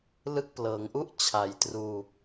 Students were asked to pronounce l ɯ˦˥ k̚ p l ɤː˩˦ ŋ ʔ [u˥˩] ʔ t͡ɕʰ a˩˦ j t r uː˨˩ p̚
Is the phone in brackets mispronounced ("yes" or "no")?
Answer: no